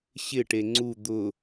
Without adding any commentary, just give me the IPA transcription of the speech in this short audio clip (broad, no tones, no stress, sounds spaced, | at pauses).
ɕ ɪ ʈ e ŋ͡ǀ u d̪ ʊ